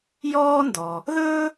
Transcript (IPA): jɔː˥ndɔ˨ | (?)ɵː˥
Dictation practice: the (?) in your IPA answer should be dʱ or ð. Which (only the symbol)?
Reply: ð